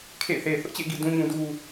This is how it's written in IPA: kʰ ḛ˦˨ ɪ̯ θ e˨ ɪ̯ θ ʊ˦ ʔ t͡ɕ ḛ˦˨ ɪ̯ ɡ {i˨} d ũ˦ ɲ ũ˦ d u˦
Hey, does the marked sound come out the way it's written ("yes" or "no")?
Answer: yes